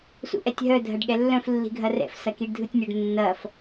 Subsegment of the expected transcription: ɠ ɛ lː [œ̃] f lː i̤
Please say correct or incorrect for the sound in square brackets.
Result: correct